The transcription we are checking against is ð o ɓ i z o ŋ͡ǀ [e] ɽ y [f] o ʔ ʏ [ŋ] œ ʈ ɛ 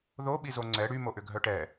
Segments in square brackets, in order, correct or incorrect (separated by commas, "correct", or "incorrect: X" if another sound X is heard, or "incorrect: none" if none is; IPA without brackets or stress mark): incorrect: ɛ, incorrect: m, incorrect: ɡʱ